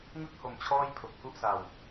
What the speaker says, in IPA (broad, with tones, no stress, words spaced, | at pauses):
ŋɯ˥˩k̚ho˩˦m t͡ɕʰɔː˥˩jpʰo˨˩k̚hu˥˩ʔsa˨˩w